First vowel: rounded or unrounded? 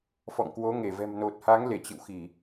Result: rounded